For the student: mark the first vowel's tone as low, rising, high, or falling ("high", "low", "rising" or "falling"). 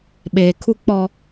low